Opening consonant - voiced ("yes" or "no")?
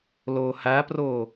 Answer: yes